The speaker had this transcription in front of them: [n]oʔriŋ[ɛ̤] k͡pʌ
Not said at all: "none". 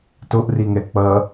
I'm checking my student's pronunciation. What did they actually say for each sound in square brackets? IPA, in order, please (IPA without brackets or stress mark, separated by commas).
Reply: t, ɛ